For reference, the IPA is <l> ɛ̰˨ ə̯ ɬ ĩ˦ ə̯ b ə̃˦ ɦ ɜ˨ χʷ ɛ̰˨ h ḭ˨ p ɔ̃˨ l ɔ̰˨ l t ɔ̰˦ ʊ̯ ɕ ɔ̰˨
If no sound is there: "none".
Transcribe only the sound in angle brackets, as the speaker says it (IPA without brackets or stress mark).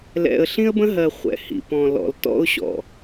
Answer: l